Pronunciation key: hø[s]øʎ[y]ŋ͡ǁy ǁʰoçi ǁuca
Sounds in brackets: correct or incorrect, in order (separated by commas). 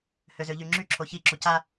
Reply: incorrect, correct